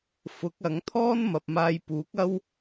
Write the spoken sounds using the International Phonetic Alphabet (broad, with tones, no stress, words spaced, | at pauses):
fʊ˨˥k̚ɐ˨˥ŋ t̪ʰɔː˥nmɐ˨p̚maː˧jpuː˨˥k̚ ɐ˥w